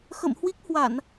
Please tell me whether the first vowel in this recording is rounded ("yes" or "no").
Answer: no